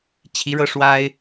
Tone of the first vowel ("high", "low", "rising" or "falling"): rising